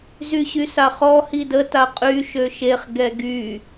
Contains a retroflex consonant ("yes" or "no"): no